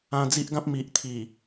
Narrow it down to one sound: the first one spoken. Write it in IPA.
ã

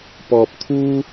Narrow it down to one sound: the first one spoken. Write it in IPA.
p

